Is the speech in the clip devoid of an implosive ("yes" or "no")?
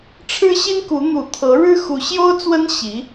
yes